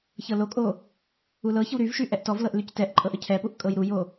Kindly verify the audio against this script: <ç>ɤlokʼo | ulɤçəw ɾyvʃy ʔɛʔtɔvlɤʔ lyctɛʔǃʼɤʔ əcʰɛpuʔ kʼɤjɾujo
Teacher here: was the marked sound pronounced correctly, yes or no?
yes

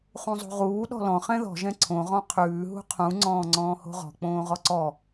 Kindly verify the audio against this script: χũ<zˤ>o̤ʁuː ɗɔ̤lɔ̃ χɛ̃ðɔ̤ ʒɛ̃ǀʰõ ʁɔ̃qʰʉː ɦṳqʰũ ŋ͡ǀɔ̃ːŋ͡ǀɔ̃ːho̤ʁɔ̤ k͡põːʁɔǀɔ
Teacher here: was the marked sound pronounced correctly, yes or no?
yes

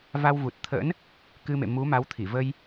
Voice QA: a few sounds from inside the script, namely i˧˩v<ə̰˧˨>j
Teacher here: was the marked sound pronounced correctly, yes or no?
no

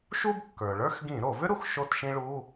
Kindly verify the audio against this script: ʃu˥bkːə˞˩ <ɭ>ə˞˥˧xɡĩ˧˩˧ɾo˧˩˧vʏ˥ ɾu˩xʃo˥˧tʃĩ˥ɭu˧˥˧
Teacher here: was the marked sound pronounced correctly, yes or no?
yes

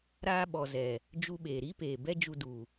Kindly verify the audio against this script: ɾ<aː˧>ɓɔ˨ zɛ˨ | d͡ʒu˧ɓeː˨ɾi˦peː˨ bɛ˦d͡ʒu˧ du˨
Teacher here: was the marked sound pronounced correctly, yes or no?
yes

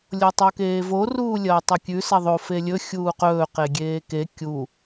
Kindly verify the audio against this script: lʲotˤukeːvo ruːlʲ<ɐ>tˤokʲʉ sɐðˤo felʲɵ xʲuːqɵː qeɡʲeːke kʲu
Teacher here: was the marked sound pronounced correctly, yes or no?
no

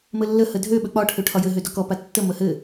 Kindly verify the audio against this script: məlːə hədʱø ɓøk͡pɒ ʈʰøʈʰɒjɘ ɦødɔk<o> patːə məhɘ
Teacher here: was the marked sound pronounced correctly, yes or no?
no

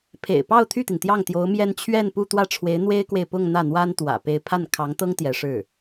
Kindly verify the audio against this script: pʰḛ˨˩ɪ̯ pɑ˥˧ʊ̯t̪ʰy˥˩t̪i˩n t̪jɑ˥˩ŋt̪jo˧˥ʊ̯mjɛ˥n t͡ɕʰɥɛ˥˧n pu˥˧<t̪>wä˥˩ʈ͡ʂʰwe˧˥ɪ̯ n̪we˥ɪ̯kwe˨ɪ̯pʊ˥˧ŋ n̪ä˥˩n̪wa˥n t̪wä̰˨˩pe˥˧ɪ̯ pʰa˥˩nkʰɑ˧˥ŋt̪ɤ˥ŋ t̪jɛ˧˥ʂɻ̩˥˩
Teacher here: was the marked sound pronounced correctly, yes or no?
yes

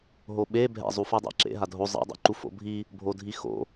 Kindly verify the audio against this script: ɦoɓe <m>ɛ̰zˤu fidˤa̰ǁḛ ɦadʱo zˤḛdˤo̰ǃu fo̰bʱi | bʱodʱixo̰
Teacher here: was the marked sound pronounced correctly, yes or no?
no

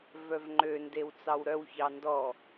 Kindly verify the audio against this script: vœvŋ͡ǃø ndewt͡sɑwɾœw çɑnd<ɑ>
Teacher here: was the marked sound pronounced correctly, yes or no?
no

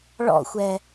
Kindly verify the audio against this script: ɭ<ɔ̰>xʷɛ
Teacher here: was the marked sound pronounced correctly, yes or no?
yes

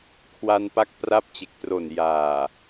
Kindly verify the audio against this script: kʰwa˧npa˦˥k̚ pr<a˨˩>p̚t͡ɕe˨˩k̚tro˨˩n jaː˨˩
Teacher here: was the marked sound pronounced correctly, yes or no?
no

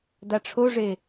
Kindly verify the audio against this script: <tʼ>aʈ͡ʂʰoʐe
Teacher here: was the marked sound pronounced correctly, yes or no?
no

